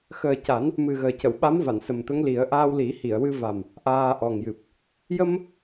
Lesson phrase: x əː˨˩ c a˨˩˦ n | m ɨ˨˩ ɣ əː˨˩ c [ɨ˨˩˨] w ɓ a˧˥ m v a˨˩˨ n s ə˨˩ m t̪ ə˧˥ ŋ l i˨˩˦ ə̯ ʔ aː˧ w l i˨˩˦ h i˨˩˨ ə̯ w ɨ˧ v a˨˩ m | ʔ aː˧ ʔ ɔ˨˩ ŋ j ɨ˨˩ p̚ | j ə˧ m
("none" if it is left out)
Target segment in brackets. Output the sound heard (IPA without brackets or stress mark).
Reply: ə˨˩˨